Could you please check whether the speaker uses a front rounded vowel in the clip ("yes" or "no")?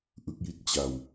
no